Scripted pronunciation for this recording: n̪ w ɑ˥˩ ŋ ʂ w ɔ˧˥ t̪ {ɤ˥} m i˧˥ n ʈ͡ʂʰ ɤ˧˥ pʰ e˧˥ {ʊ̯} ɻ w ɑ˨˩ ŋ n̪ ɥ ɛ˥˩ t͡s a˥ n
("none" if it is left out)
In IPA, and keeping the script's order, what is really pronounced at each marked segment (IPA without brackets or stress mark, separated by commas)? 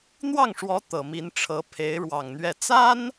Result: ɤ˨˩, ɪ̯